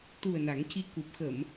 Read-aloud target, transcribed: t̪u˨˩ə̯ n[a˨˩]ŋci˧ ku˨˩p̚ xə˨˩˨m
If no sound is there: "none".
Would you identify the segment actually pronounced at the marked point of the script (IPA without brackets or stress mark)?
a˨˩˦